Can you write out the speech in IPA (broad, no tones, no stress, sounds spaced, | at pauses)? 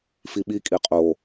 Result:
f i ɓ i kʼ i qʼ o